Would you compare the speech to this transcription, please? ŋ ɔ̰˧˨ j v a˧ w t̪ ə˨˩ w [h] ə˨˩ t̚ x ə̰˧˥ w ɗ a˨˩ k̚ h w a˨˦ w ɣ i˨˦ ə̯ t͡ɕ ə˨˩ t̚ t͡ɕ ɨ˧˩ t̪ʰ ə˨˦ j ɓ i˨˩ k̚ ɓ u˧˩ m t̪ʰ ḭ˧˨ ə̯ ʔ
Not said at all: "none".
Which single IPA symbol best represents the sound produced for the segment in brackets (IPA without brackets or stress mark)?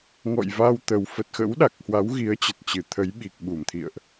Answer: f